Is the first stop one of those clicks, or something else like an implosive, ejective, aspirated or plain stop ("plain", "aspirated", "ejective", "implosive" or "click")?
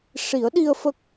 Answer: implosive